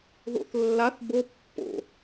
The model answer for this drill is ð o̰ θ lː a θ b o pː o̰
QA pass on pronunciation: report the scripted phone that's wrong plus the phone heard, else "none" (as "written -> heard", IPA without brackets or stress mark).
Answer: none